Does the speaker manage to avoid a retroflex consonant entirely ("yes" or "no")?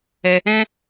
yes